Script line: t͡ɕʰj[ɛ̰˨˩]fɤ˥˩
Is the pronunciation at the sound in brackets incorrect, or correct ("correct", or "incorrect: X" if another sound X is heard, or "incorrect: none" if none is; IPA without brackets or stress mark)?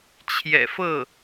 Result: correct